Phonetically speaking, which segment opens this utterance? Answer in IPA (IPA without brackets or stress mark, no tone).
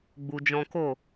ɡ͡b